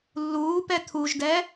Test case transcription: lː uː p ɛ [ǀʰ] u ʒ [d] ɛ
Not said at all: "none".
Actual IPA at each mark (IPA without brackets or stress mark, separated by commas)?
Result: t̪ʰ, d